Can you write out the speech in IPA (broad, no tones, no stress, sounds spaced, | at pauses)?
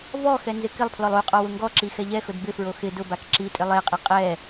v ɔ x ɛ n z ɪ k ɪ lˠ pʰ l ɔ lˠ u qʼ ɔ w ʊ ŋ ɡ ɔ ǁ i x ɛ ʎ ɛ x ʊ d b ɪ f ɹ o x ɪ d ʊ b a k ǁ i tʼ ɪ lˠ e qʼ i qʼ ɛ